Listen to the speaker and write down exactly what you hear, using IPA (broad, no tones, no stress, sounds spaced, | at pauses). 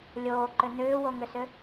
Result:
lʲ oː ǃ ʏ n̪ ʏː w o ŋ ʏ s ʏ